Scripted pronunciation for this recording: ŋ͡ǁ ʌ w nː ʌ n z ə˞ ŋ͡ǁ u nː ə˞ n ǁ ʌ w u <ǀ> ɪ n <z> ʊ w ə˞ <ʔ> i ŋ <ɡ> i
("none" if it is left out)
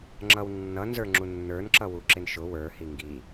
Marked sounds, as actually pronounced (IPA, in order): ǁ, ʃ, h, ɡ

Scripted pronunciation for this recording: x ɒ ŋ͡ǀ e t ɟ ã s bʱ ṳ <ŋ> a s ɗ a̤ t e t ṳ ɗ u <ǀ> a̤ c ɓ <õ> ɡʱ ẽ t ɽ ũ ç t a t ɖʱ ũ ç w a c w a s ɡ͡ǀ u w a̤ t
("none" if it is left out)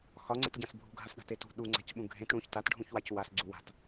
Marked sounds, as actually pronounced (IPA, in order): ɡʱ, ŋ͡ǀ, ũ

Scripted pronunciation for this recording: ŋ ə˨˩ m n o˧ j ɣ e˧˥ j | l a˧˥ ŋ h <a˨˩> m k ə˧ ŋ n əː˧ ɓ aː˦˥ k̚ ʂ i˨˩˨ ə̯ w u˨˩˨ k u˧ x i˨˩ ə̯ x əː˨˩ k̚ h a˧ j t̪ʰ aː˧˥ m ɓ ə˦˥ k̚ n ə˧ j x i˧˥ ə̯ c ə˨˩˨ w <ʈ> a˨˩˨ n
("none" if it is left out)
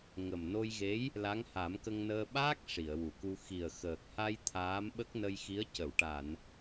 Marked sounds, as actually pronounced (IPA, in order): a˨˩˦, ʈ

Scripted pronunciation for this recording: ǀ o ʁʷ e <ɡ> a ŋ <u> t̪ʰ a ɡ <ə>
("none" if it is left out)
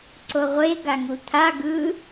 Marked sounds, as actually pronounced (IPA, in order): ɡ, u, ɯ

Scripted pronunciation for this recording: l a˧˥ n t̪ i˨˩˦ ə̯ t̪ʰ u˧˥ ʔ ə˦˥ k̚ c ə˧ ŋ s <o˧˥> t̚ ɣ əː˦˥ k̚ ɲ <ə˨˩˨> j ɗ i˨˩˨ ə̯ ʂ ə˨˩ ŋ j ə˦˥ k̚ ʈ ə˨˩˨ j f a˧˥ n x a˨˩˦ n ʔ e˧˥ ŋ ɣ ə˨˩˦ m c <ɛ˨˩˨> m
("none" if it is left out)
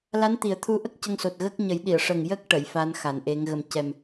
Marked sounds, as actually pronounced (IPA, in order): o˨˩, ə˨˩˦, ɛ˨˩

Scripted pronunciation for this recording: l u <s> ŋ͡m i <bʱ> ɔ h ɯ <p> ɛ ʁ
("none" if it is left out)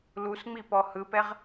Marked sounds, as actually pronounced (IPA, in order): s, p, p

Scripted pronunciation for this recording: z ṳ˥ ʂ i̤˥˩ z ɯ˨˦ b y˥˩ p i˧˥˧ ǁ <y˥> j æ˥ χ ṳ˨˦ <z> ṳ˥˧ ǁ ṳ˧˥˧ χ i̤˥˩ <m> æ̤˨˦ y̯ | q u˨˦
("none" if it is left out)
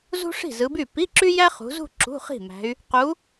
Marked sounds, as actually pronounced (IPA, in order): y˥, z, m

